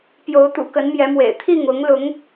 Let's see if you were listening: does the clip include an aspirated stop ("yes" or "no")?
yes